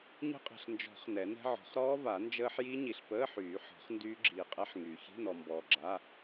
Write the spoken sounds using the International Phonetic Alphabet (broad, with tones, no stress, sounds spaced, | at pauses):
ɲ ə̤˦˥ qʼ ɛ̤˨ ɬ n d͡ʒ ɔ̤˨˩˦ χ n ɛ˨˩˦ n ɛ̤˦˥ ʕ ɔ̤˨˩˦ χ ɾ ɔː˦˥ v a˨˩˦ n d͡ʒ əː˦˥ ħ j i˦˥ ɲ i˨ ɬ p əː˧˥˧ ħ yː˨˩˦ ħ ɔ̤˨˩˦ χ n d yː˦˥ ɡ͡ǁ iː˨ qʼ ɛ˦˥ ħ ŋ yː˨ ç i̤˧˥˧ n ɔ˨ m b ɔː˨ ɡ͡ǁ a˧˥˧